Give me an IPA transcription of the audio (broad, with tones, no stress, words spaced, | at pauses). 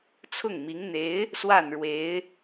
t͡sʰʊ˥˩ŋmi˧˥ŋn̪e˧˥ɪ̯ | swa˥˩n ɻwe˧˥ɪ̯